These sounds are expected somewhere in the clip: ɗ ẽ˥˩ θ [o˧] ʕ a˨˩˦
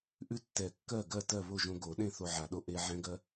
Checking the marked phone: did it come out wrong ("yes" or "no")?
no